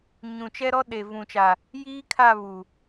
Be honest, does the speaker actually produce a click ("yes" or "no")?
no